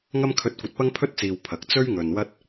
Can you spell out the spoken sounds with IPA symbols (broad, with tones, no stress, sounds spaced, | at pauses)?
ŋ ɐ˧ m kʰ ɵ˨˥ t̚ kʷ ɐ˨ t̚ p ɐ˥ ŋ pʰ ɵ˥ t̚ t͡s iː˨ w pʰ ɐ˨ k̚ t͡s ɵ˥ ɥ ŋ ɵ˨ n w ɐ˥ t̚